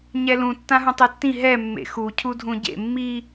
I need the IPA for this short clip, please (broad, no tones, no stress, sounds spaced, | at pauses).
ɲ ɛ l ũ tː ã ɦ ũ tˤ e tː ĩ ɦ ɛ mː ḛ x u cʰ u dʱ ũ ɟ ḛ mː i